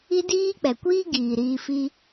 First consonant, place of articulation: alveolar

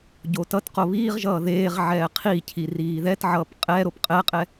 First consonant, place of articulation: palatal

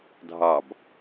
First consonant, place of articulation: alveolar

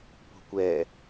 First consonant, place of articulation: labial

